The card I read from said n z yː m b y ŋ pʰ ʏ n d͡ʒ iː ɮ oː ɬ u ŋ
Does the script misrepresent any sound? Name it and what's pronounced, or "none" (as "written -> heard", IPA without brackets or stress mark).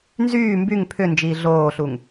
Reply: none